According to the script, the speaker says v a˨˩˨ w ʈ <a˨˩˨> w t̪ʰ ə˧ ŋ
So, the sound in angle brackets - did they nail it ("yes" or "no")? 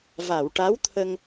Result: no